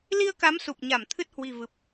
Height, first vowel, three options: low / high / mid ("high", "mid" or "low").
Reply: high